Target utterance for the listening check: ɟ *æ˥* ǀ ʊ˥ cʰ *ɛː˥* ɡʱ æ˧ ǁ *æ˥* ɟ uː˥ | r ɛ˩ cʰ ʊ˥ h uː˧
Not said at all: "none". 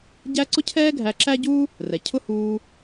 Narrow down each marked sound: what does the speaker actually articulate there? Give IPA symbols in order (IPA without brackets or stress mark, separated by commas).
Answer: æ˥, ɛː˥, æ˥